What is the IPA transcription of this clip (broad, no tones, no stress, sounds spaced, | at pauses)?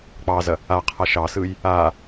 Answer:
k͡p ɑ z ɐ | a qʰ a ʃ ɑ s ɯ j | a